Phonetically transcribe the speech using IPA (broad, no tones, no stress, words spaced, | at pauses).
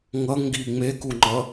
ŋʌŋɡi ŋ͡mekuŋ͡ǃʌ